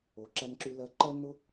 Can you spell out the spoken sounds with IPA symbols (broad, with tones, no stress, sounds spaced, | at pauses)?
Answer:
o˩ ǁ æ˧ n ǁ y˧ l ɜ˧ ǃ ɜ˥ n ʊ˥